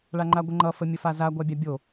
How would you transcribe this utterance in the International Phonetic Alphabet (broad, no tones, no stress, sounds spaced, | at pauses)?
ɭ a ŋ͡ǃ a ɡʷ ə ŋ͡ǃ ʌ f ə mʲ ə f a z a ɡʷ a bʲ a bʲ o